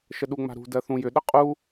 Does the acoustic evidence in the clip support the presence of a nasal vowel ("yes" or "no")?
yes